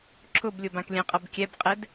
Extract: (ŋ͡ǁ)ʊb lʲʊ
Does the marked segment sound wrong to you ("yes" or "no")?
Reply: yes